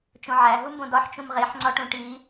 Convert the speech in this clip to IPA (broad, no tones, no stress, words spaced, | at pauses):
t͡ʃõʕæ ɦumbõdɒħ t͡ʃũmʁeħ ŋ͡ǀɒʈũʈi